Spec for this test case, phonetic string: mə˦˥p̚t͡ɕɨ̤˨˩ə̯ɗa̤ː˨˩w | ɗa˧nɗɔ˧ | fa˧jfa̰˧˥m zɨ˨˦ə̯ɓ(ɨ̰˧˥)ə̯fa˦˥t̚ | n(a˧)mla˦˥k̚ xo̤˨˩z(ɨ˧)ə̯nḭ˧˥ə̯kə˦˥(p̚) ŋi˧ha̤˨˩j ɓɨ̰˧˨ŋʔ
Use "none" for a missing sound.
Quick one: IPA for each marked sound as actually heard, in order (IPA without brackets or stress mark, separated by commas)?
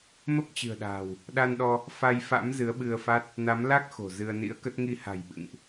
ɨ˧, a˨˦, ɨ˧, t̚